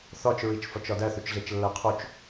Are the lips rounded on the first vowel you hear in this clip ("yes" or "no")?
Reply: yes